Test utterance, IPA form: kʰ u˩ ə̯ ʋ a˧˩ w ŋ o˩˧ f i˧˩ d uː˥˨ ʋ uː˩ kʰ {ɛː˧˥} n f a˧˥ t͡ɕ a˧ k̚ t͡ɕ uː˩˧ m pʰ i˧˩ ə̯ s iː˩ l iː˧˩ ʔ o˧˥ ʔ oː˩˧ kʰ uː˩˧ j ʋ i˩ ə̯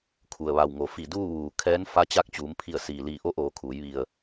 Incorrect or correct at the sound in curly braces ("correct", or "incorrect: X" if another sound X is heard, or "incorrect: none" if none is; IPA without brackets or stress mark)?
correct